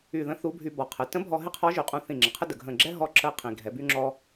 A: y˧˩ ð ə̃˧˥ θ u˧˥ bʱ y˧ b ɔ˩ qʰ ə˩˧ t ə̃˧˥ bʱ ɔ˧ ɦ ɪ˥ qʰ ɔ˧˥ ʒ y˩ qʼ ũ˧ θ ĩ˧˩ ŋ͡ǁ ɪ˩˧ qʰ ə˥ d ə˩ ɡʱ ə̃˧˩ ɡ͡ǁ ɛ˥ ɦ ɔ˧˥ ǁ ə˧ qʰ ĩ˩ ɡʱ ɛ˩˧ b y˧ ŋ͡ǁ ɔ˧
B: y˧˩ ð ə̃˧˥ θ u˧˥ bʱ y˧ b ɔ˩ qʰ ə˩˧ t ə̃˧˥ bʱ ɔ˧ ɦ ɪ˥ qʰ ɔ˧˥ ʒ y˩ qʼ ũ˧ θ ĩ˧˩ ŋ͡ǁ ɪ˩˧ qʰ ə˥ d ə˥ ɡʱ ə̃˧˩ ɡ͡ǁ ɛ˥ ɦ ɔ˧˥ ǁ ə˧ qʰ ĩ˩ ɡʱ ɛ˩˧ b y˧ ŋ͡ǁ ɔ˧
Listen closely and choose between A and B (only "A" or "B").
A